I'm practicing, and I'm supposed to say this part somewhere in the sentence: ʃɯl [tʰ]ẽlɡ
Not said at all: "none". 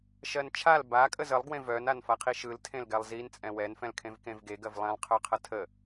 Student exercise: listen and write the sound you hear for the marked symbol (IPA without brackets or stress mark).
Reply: tʰ